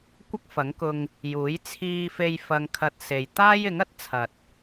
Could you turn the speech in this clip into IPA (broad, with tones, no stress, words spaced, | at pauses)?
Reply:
kʷɐ˥k̚fɐ˨˥ŋkʊ˧ŋ | juː˨˥j t͡sʰiː˧fe˧j fɐ˧ŋkʰɐ˧t̚se˨j t̪aː˥jɪ˨˥ŋɐ˥t̚ t͡sʰɐ˨t̚